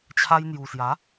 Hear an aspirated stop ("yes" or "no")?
yes